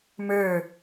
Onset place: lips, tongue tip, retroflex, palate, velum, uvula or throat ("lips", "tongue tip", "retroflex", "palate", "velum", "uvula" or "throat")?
lips